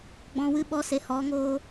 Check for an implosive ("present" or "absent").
present